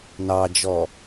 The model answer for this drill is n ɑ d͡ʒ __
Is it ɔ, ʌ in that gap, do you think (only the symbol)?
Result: ɔ